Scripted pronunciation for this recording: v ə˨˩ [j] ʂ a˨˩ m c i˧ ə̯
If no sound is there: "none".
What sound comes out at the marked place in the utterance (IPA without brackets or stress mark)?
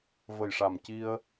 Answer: j